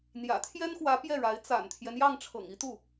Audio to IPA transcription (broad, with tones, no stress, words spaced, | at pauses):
n̪jä̰˨˩ t̪ʰjɛ˥nxwä˧˥ pjɛ˥˩ɻa˧˥ɪ̯ t͡sa̰˨˩nt̪ʰjɛ˦njɑ˥˩ŋ ʈ͡ʂʰɤ̰˨˩ŋi˥t̪u˥˩